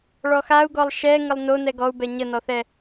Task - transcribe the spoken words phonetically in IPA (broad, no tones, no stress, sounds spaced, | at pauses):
ɭ ɔ x a u̯ ɡ ɔ lˠ ʃ ɛ ŋ ə lˠ n o n ɛ ɡ ɔ u̯ b ɛ ɲ ə n ɔ θ ɛ